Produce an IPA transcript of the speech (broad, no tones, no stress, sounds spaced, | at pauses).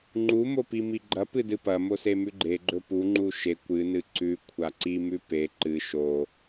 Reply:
ŋ͡ǃ u m o p i m i ɡ͡ǃ ɐ p ɨ d ɨ p ɐ m o s e m ʉ ɡ͡ǃ e ɡ͡ǃ ɵ p u ŋ͡ǃ u ʃ e kʷ ɨ n ɨ ǀ ʉ kʷʰ a ǀ i m ʉ p e ǃ ɨ ʃ o